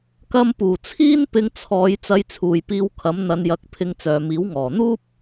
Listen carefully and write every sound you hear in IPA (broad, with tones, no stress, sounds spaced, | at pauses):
k ɐ˧ m p uː˨˩ t͡sʰ iː˥ n p ɪ˧ ŋ t͡sʰ ɔː˨˧ j t͡s ɐ˧ j t͡sʰ uː˨ j p iː˧ w kʰ ɐ˨˥ m n̪ ɐ˧ n j ɐ˨˥ k̚ pʰ ɪ˧ ŋ t͡s œː˨ m iː˨˥ w ŋ ɔː˨˩ n̪ uː˥ p̚